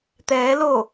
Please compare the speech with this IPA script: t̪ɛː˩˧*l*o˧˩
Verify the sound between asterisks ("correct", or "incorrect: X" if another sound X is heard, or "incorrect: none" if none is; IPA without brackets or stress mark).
correct